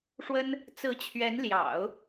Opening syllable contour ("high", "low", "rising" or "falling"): high